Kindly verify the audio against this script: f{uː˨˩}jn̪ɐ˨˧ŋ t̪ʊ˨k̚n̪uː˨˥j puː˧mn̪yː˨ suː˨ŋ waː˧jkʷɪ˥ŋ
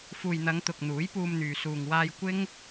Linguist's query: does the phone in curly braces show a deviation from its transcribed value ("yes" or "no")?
yes